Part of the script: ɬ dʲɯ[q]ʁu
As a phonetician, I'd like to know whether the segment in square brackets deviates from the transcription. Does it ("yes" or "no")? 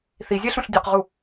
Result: no